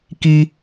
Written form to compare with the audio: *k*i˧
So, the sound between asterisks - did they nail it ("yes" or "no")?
yes